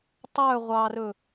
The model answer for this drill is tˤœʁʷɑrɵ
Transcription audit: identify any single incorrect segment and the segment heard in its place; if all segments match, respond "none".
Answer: none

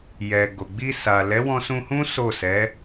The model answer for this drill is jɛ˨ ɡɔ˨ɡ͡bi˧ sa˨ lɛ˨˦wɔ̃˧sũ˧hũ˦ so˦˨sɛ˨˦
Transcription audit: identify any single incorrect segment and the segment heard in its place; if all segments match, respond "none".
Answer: ɔ˨ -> o˨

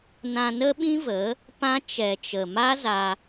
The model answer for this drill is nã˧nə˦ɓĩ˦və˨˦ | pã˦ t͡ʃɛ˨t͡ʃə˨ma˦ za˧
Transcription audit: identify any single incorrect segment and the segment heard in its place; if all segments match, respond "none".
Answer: none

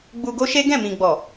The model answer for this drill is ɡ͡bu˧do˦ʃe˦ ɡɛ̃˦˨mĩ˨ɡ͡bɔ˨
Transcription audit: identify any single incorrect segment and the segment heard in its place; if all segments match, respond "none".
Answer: d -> ɡ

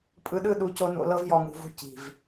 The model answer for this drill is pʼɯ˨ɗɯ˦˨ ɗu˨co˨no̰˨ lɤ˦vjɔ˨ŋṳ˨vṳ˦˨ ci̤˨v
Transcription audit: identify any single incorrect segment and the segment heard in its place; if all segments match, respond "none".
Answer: none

